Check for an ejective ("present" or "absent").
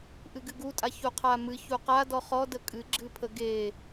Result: present